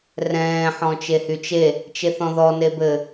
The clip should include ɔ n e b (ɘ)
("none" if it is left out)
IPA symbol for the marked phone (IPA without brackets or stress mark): ɘ